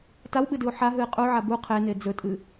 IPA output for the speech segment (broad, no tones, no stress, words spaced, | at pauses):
tawɓɨdɨʊ̯ ħaɦɨɪ̯ qʼuʕa bu qʰene d͡zɵtʼɨ